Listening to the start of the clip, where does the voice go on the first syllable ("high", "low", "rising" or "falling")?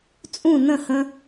falling